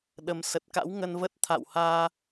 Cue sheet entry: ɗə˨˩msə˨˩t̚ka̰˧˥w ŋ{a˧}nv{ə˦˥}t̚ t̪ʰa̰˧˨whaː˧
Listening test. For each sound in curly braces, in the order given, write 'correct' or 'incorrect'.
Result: incorrect: ə˧, correct

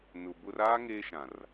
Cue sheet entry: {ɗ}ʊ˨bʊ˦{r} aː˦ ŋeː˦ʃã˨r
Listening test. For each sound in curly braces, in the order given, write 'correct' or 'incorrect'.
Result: incorrect: n, correct

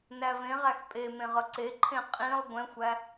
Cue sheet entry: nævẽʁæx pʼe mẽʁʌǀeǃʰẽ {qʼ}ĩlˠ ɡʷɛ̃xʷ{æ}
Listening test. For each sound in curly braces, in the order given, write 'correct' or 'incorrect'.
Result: correct, correct

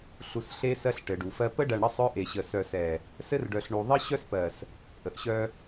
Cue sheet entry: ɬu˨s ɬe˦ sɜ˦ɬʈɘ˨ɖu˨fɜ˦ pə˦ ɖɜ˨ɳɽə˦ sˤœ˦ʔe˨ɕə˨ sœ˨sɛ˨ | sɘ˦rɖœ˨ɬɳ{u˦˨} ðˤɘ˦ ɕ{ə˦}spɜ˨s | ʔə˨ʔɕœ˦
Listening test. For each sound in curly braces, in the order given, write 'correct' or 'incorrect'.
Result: incorrect: u˨, incorrect: œ˦

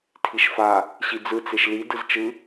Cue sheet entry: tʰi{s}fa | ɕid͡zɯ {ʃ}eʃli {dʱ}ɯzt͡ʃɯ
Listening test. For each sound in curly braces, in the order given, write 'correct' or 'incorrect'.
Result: incorrect: ʃ, incorrect: t͡s, incorrect: d

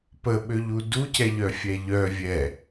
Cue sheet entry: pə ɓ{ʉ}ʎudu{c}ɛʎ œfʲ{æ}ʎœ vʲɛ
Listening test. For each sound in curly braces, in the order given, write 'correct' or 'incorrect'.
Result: incorrect: ø, correct, incorrect: ɛ

